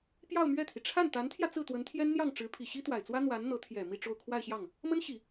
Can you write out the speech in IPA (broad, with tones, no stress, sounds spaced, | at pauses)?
p j ɑ˥˧ ʊ̯ m ɥ ɛ˥˩ t̪ʰ i˩ ʈ͡ʂʰ a˥˩ n t̪ a˧˥ n t̪ʰ j ä˧ t͡s ɹ̩˥˩ t̪ w ə˧˥ n t̪ʰ j ɛ˥ n n̪ j ɑ˥˩ ŋ ʈ͡ʂ ɻ̩˧˥ pʰ i˨˩ ɕ i˥ t̪ w a˨˩ ɪ̯ t͡s w ä˥ n̪ w a˧˥ n n̪ ɤ˧˥ t̪ʰ j ɛ˨˩ m i˥˧ ʈ͡ʂ o˥˧ ʊ̯ kʰ w a˥˧ ɪ̯ ɕ j ɑ˥˩ ŋ | m ə˥ n ɕ i˨˩˦